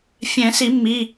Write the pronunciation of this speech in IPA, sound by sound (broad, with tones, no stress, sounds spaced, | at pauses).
fʲ ɛ̃˨˩˦ s i˨˩˦ mː i˩˧˩